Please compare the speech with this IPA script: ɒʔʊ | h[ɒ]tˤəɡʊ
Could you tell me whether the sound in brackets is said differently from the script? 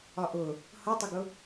yes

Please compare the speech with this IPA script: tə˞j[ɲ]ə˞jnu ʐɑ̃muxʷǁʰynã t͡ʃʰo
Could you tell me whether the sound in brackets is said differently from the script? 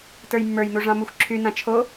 yes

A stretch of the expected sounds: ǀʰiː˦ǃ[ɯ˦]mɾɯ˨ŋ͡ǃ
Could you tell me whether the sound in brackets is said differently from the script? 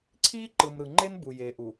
yes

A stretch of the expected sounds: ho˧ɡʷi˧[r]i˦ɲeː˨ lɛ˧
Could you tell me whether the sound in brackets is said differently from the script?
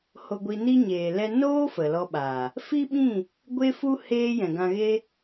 yes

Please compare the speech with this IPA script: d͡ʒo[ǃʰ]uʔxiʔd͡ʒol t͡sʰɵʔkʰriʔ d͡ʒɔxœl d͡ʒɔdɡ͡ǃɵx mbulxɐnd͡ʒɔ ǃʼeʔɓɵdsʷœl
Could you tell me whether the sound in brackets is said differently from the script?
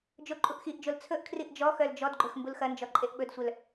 yes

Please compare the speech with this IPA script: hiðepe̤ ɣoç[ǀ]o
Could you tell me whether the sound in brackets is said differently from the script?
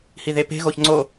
yes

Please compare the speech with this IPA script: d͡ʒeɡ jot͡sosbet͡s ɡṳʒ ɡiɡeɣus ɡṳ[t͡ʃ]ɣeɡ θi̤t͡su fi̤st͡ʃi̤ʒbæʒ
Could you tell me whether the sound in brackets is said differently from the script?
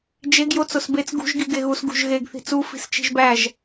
yes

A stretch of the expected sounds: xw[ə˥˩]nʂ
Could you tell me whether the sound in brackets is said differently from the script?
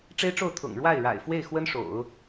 yes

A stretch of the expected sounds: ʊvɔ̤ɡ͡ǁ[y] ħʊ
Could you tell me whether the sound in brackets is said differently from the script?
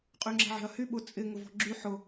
no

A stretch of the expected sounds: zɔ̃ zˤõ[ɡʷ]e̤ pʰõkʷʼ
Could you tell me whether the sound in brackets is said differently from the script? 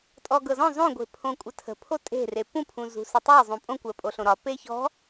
no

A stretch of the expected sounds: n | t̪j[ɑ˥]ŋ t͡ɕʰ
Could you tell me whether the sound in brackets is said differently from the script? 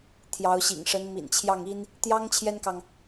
no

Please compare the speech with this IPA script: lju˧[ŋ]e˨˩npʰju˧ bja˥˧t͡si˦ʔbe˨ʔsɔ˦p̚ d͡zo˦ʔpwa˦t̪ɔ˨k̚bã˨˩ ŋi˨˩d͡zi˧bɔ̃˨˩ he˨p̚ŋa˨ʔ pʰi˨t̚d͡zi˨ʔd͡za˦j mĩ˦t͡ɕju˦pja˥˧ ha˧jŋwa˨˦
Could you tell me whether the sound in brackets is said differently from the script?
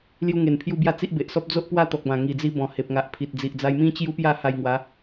no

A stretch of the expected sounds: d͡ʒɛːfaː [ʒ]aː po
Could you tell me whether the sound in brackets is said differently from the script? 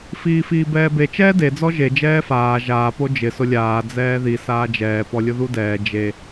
no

